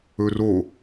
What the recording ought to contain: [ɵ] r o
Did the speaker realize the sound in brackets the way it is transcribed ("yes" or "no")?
yes